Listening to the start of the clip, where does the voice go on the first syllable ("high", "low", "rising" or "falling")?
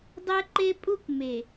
high